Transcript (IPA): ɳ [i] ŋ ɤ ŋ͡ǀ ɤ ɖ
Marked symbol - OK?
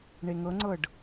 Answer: no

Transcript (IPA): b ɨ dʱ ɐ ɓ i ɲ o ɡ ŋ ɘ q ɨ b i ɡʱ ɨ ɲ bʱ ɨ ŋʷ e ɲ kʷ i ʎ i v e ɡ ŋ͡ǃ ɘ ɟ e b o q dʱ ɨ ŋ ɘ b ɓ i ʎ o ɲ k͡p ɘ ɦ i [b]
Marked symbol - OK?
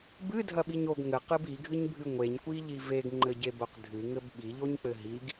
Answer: no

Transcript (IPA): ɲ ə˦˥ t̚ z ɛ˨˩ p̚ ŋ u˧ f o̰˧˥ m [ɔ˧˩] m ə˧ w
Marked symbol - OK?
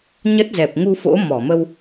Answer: yes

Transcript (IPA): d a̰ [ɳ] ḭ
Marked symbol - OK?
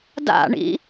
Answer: yes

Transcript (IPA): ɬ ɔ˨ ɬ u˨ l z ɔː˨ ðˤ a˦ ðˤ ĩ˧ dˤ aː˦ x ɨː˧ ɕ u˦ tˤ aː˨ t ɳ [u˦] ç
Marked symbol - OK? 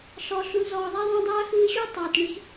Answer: no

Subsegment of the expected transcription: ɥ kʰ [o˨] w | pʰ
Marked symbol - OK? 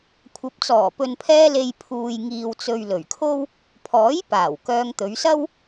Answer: no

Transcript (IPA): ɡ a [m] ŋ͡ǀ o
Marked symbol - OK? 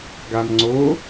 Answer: yes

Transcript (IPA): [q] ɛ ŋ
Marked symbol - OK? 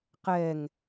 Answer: yes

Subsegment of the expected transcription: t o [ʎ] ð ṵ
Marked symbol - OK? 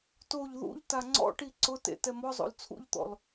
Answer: yes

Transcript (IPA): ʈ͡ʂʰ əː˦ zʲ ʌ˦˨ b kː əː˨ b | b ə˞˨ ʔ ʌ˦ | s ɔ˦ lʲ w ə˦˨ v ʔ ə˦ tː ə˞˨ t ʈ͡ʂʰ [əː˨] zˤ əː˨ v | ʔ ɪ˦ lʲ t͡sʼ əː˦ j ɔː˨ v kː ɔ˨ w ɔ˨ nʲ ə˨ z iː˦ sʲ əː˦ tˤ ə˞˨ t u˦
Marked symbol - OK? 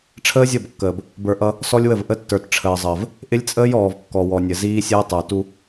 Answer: yes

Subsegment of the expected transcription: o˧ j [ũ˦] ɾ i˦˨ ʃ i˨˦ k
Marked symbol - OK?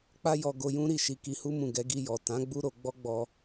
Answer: yes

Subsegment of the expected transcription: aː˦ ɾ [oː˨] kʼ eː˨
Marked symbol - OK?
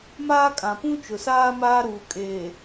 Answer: no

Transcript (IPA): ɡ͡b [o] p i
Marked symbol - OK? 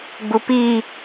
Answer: no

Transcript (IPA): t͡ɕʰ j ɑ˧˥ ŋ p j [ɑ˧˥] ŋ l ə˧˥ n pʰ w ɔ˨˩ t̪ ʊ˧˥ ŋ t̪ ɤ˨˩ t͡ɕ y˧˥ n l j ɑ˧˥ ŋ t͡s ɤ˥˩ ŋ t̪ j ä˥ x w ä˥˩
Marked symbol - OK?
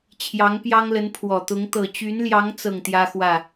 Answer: no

